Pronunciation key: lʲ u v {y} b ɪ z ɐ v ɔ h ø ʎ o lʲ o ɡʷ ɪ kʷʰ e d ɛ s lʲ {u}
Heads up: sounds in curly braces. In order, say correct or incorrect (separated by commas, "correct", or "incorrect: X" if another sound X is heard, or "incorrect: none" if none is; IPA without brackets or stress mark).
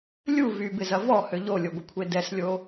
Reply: correct, incorrect: o